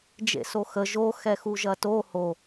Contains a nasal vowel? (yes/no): no